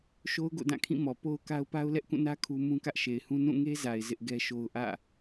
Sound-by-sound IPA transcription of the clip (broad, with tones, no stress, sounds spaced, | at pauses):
ʃ o˦ ʊ̯ ɡ o̰˦˨ d ã˦˨ kʰ ĩ˦˨ m ɔ˨ p o˦ ʊ̯ k a˦ ʊ̯ p a˦ ʊ̯ l ɛ˦ ʔ k ũ˦˨ n ä˦ kʰ u˦ m ũ˦ k ä˦ ʔ ʃ e˨ ɪ̯ h ũ˦ n ũ˦˨ ŋ e˦ z a˨ ɪ̯ z ɪ˦ ʔ ɡ ɛ˦ ʃ o˦ ʊ̯ ʔ ä̰˦˨